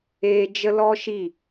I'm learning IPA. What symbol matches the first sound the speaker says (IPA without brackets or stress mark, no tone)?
eː